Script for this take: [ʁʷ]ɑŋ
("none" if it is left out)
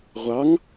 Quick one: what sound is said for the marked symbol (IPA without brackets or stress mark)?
ʁʷ